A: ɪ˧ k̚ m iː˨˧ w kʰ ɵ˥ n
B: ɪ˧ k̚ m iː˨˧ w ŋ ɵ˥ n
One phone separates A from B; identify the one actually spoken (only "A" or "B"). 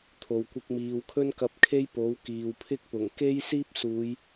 A